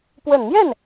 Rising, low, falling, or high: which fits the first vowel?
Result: low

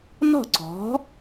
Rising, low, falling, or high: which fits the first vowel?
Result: falling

